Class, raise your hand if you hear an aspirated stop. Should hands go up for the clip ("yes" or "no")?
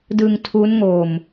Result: yes